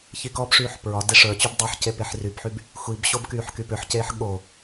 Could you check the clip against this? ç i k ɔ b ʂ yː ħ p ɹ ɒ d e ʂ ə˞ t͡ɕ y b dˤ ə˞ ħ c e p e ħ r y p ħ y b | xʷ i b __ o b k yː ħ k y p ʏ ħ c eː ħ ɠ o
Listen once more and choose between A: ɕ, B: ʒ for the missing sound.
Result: A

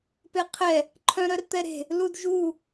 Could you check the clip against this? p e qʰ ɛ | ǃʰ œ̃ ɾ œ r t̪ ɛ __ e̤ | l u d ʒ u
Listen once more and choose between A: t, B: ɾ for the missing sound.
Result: B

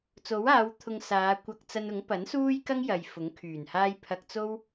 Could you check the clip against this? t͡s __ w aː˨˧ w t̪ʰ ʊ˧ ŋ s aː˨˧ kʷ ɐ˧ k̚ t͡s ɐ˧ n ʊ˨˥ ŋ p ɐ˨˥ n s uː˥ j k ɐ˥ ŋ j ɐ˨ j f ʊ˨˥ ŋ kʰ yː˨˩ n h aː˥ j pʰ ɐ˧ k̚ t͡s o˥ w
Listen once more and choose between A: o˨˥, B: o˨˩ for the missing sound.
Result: A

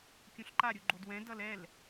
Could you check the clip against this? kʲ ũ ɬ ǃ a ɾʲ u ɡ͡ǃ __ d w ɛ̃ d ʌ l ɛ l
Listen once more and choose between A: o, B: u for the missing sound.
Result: A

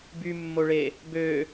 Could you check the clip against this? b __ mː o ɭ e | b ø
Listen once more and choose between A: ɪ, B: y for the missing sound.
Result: B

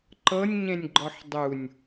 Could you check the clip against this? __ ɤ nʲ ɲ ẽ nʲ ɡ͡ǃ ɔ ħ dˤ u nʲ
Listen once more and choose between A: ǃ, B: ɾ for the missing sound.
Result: A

